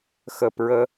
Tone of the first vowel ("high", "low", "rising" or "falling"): low